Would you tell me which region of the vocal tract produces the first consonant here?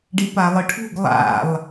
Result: retroflex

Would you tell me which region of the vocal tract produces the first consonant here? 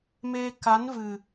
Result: lips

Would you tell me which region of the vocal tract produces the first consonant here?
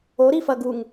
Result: tongue tip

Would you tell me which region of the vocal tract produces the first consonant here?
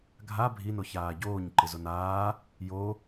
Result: velum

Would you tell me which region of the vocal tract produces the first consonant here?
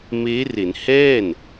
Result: lips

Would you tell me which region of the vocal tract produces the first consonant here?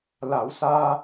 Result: tongue tip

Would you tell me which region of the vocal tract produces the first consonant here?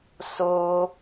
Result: tongue tip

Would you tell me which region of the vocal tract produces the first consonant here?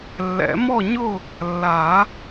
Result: tongue tip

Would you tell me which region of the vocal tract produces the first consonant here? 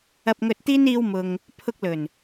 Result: lips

